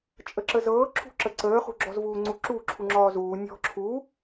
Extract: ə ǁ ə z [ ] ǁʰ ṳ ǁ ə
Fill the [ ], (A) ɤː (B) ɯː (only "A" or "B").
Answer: A